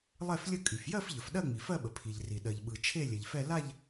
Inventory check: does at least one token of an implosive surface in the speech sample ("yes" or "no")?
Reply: yes